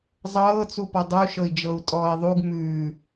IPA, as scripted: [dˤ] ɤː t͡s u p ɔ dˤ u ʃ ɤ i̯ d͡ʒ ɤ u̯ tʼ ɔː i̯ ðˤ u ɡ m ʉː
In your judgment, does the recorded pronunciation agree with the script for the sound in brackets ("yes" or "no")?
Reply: no